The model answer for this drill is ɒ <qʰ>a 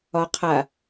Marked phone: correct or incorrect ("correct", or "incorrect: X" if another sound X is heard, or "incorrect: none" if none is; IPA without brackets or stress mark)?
correct